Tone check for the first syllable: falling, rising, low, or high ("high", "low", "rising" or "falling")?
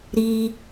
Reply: high